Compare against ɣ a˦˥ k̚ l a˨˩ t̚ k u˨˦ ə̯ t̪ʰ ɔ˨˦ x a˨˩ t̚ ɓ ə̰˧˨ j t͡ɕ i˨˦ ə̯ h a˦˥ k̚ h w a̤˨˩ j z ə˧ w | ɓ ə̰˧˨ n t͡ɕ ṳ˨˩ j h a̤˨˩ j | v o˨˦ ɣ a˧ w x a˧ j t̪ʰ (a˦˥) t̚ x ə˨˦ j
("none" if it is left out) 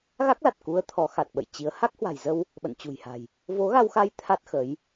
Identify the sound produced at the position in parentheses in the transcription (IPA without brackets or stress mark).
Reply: a˦˥